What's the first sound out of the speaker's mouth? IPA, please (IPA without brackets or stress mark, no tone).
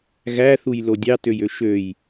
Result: ɣ